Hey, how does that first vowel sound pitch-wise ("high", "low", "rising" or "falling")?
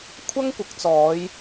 high